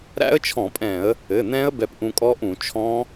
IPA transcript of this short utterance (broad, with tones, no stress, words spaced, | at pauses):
ɾæ̰˦˥ə̯t͡ʃʰɔ̃˧˩˧pʼɛ̃˧˩˧ə̯ | ɘ˩˧˩n̪ɛ̃˦˥ə̯ bɛ˧pʔũ˧kʼɔ˦˥ʔũ˧˩˧ t͡ʃʰɔ̃˦˥